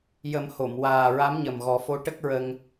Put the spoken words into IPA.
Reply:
j ə˨˩˦ m h o˨˩˨ m w aː˨˩ ɹ a˧˥ m ɲ ə˨˩ m ɣ ɔ˨˩˦ f o˧˥ ʈ ə˦˥ k̚ ɹ ə˧ ŋ

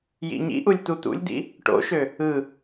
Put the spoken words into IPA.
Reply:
j ḭ ɲ ḭ ʔ u lʲ t̪ u t̪ ṵ lʲ d̪ ḭ | ʈ o̰ ʃ ø | ɯ

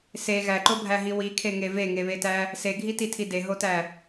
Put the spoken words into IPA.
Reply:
s e ɣ æ ǃ o bʱ æ ɦ i w i kʰ e ŋ e v e ŋ e β e t æ | s e ɡʱ i t i tʰ i d e ɦ o t æ

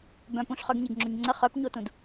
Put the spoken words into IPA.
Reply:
b œ̃ p ũ ɬ χ œ ɡ ɲ e ɡ ŋ͡ǁ o ɲ ŋ͡ǀ ə χ œ p ɲ o t ũ d

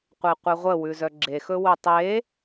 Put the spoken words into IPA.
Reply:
qʷ e qʷ e ʁʷ ə w ʉ z œ ɡ͡ǁ e x ɵ w ɵ tˤ e

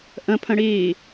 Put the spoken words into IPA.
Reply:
ʔ ə̃ pʰ ə̃ ɽ iː

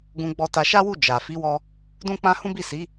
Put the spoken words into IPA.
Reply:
ɡ ũ˧ ɡ͡b ɔ˧ t a˧ ʃ a˦ w u˦˨ d͡ʒ a˨ f i˨˦ w ɔ˧ | d ũ˦ k͡p ã˦ h ũ˦ b i˦˨ s i˨˦

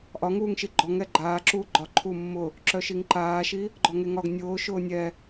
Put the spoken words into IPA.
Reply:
ʔ ɒ ŋ uː ŋ ʃ i ɡ͡ǃ ɔ ŋ ɛ ɡ͡ǃ aː ǁ uː ɡ͡ǃ ɒ ǃʰ u mː ʊ | ǁ œ ʃ i ŋ ǃ aː ʃ i | ɡ͡ǃ ɔ ŋ e ŋ ɒ ɡ nʲ ʊː ʃ ʊː nʲ ɛ

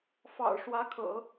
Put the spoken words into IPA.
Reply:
f ɑ̰˨˩ ʊ̯ ʂ w ä˧˥ kʰ ɤ̰˨˩˦

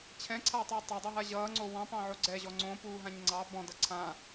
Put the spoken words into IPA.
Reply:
t͡ɕʰ ɛ̃ ǀʰ aː tˤ ʌː tˤ a dˤ ʌ ɦ a ʑ ʌː ŋ͡ǀ o w ɑ̃ p ɑ̃ ʕ o ɡ͡ǀ ɛ ʑ ɔ ŋ͡ǀ õ p uː ɦ ã ɲ ŋ͡ǀ ɑ b ɔ̃ d ʌ ǀʰ ã

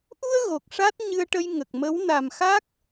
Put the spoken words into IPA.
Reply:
ʔ u˧ ə̯ ɣ o˨˩ k̚ ʂ a˦˥ t̚ ɲ ɨ˧ ə̯ ʈ ə˧ j ŋ ə˨˩ k̚ m ə˧˥ w n a˨˩ m x a˦˥ k̚

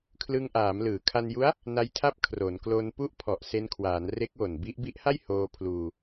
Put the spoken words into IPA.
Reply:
kʰ l ɯ˧ ŋ ʔ aː˩˦ m l ɯː˩˦ kʰ a˧ n j u˦˥ a̯ | n a˦˥ j tʰ a˥˩ p̚ kʰ r o˩˦ n k l o˧ n p u˥˩ ʔ pʰ ɔ˨˩ ʔ s e˧ n kʰ w aː˩˦ n r e˦˥ k̚ w o˨˩ n b i˦˥ ʔ b i˦˥ ʔ h a˥˩ j h oː˧ pʰ l uː˧

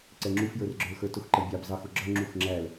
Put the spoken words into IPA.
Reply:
ǀ ɛ ŋ͡ǁ u f j ə˞ r ɡ͡ǁ ə˞ l x ə˞ t ʊ x ǃ ə bʲ ɑ b z ɑ x ʊ ɡ͡ǁ ʌ ŋ͡ǁ u x ŋ͡ǁ æ l

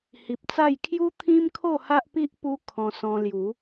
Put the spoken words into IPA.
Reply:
h i˨ p̚ t͡s a˥˧ j kʰ j u˦ t̪ʰ ĩ˦ m kʰ o˥˧ h a˦ ʔ p i˦ ʔ p u˦ kʰ ɔ̃˧ s ɔ̃˧ l j u˨˦

